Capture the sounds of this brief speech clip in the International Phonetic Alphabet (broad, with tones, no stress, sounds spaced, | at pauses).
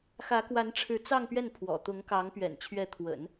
x ä˧˥ k w a˧˥ n ʈ͡ʂʰ ɻ̩˧˥ t͡s ɑ˥˧ ŋ p ɥ ɛ˥˩ n pʰ w ɔ̰˨˩ t̪ ʊ˧˥ ŋ k ɑ˧˥ ŋ p ɥ ɛ̰˨˩ n t͡ɕʰ ɥ ɛ˧˥ t̪ʰ w ə̰˨˩˦ n